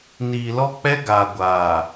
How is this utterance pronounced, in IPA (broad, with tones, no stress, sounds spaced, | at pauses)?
n iː˨ l ɔ˦ k͡p ɛ˦ ɡ aː˨ ɡʷ aː˨